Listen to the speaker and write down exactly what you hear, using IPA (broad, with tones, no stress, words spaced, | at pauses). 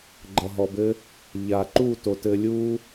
ɡ͡ǃʌ˨ɦɔ˨bɘ˦ | ʎa˨ ǃu˦˨to˨tɘ˧ lʲu˦